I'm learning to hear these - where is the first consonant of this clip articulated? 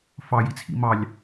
lips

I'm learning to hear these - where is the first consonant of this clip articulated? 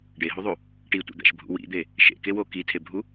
retroflex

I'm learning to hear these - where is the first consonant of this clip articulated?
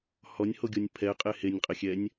throat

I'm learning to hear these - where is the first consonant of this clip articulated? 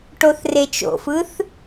retroflex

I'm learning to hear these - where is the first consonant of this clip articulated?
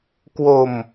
velum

